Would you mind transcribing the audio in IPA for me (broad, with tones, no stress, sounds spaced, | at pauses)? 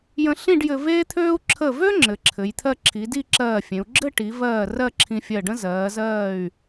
j ə̃˧ ɬ ĩ˥˧ ɖ j ɘ˧ v eː˥ t̪ʰ øː˥ u̯ ǁʰ ə˧˩ v ø˥ ŋ͡ǁ ɘ˩˧ ǁʰ ɘ˩˧ j t̪ʰ ɜ˧ ǁʰ i˩˧ d i˥˧ ǁ ɜː˧˩ fʲ ẽ˩˧ u̯ ɡ͡ǁ ɘ˥˧ ʈ i˩˧ v ɜː˧˩ r ɜ˥˧ ǁʰ ĩ˧ fʲ ɜ˧˩ ɖ ə̃˥ z ɜː˩˧ z ɜː˧˩ y̯